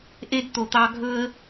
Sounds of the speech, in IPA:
ʔe˦dt̪o˨t̪ɑ˦ ɡʱɵ˦ə̯

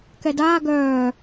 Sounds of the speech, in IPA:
kɛdaː ɡœː

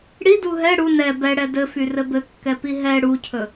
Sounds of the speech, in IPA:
ɽidu ɦɛ ɽu nɛ bɛɽɛ dɘfyrɘ bɘkːɛpi ɦɛ ɽucʰɵ

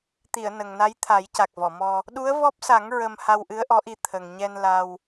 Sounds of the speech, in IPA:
t̪i˨˩˨ə̯ nə˨˩ŋna˧˥j t̪ʰa˨˩˦jca˨˩k̚vɔ˨˩˨mɔ˧ | ɗu˧˥ə̯vɔ˦˥p̚sa˨˩˦ŋ ɹə˧m ha˧wʔɨ˧˥ə̯ʔɔ˧˥ʔi˧ t̪ʰə˨˩ŋ ɲɛ˧n la˧w

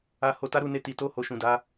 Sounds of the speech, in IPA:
a˧ ho˧ta˦ɾu˧ne˧ ti˨to˧ ho˨ʃũ˨da˨˦

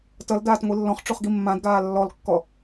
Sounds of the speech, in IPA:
tʌl daːtŋʷilːɔ̃χ ʈ͡ʂuχɡimːãdɡaː lːɔlkːɔ

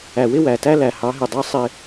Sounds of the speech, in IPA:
æ˨wɪ˦wæ˨tæ˦ læ˨hɑ˨˦ɦɪ˨dˤæ˦ sˤɪ˦

